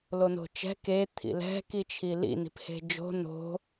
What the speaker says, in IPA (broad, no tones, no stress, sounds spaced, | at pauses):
l o n o̤ t͡ʃ ɛ̤ k e t̪ʰ ḭ l ɛ̤ k i t͡ʃʰ i l ḭ n i̤ p h e̤ d͡ʒ o̤ n o̤